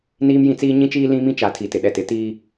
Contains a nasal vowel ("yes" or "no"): yes